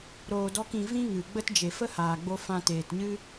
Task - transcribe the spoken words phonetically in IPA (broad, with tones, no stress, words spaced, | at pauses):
ɾoː˧dɔ˦kĩ˧ vĩ˦ŋɨ˨ɡ͡bə˦t d͡ʒe˨fə˦haː˨ɡ͡bo˧ fã˧teː˨tɲɨ˦